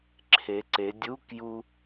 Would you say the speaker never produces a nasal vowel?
yes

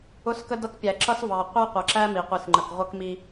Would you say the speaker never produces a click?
no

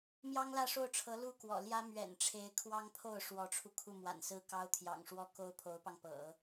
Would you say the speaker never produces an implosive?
yes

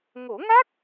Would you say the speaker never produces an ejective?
yes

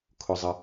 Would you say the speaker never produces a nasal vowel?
yes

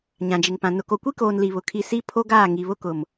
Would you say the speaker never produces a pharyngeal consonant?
yes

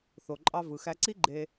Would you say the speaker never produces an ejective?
no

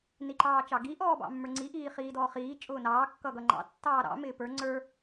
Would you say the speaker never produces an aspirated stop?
yes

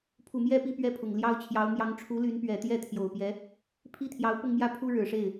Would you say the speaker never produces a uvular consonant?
yes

